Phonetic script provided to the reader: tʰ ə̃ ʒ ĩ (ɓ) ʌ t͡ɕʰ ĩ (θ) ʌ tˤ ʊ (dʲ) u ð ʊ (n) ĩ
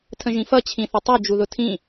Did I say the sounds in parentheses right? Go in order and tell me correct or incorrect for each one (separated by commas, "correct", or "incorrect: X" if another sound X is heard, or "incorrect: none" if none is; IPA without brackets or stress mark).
incorrect: f, correct, incorrect: d͡ʒ, incorrect: tʰ